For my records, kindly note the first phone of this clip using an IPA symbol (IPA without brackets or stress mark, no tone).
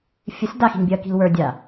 fʲ